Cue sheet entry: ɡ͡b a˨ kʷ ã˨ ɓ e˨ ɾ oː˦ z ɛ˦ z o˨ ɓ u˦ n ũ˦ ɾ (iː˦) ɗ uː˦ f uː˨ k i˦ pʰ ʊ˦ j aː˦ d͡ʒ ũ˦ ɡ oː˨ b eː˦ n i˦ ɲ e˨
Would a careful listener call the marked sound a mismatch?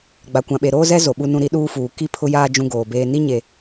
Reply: yes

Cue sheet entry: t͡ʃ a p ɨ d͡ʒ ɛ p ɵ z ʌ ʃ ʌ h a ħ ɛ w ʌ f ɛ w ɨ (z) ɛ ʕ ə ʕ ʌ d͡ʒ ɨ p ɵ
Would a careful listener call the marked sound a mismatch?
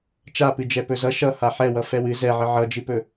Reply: no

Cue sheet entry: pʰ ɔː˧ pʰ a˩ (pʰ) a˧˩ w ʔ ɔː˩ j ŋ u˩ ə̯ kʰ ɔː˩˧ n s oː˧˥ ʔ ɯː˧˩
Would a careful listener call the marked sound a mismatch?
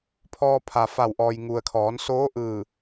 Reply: yes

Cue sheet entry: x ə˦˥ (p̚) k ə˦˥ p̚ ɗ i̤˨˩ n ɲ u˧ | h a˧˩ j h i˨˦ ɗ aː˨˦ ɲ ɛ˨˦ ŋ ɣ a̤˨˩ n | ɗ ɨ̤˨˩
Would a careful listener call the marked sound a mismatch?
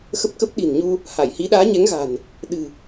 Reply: no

